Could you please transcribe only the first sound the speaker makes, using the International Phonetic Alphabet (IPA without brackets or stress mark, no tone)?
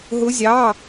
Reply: ɦ